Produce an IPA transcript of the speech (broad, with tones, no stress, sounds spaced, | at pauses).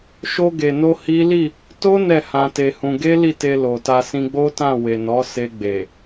ʃ o˧ ɡ e˨ n o˧ h i˦ l i˦˨ | t o˦ n ɛ˦˨ h ã˧ t e˧ h ũ˧ ɡ e˦ l i˦˨ t e˧ l o˨ t a˧ s ĩ˧ ɡ͡b o˦ t ã˦˨ w e˨ n ɔ˨˦ s e˧ ɡ͡b e˨